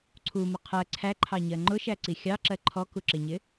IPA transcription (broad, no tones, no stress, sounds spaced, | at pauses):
ǀʰ u m ə qʰ ɜ ǀʰ æ ǃʰ ɑ ɲ ɜ ŋ͡ǃ ʊ ʃ æ ǀ i xʲ ɑ ǁ ɜ ǃʰ ɔ k u ǁ ɪ ɲ ɪ